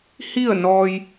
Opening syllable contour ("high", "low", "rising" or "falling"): falling